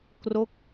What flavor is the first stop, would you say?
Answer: plain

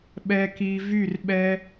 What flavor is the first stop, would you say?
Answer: implosive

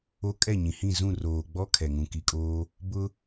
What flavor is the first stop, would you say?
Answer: ejective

